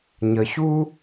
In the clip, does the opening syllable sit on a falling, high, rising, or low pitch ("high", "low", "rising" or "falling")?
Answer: low